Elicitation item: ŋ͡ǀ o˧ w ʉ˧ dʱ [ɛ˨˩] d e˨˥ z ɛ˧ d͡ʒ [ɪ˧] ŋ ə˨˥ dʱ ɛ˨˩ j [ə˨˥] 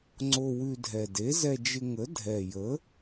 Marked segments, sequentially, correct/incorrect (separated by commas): correct, correct, correct